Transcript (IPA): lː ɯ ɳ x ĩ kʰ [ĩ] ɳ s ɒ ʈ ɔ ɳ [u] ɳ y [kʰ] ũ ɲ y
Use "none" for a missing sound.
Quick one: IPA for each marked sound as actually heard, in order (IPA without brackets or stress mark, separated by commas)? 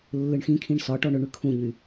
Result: ĩ, ʏ, kʰ